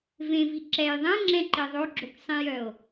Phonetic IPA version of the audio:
v ẽ v i ǁ ɛ j ðˤ ɛ̃ ŋ͡ǁ ɛ̃ ǃ i ðˤ o ɡ͡ǁ o k sˤ ĩ j œ o̯

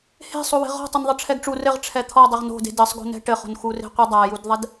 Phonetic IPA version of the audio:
h e̤ sˤ o w e̤ ʁ ɔ̤ tˤ ɘ n ðˤ ɘ ʈ͡ʂʰ ɛ ɡ ʈ͡ʂ u r ɘ ʁ ʈ͡ʂʰ ɛ t̪ʰ ɔ dˤ ɘ ʁ n o̤ d e̤ d ɘ sˤ ɡ o̤ n ɛ̤ ʈ ɘ χ o̤ n x u r e̤ qʷ ɨ dˤ a j u d ðˤ ɛ d

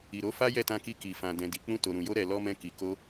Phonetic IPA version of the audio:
i˨ ɾ o˨˦ f a˦ j ɛ˦˨ t ã˧ k i˧ k i˨ f ã˨ d ɛ̃˨ d i˨ k͡p ũ˧ t o˨ ɾ ũ˨ j o˧ ɾ ɛ˨ l ɔ˧ m ɛ̃˧ k i˨ k o˧

